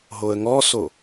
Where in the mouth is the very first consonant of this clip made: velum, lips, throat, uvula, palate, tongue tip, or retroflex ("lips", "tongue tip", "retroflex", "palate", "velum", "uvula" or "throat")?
throat